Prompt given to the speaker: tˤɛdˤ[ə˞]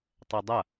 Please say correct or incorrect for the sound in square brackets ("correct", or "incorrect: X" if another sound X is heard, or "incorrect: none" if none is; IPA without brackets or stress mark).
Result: incorrect: ɐ